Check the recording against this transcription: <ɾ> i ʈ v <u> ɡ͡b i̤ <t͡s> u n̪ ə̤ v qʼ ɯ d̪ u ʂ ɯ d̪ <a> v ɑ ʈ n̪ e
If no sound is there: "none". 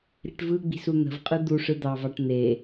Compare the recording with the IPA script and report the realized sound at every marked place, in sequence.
ɾ, ɯ, s, ɑ

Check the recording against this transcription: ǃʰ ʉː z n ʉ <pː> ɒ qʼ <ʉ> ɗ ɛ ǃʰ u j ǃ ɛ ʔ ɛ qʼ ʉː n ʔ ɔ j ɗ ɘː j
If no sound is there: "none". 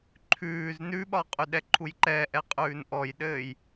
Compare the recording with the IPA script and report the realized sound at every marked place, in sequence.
ɓ, ʉ

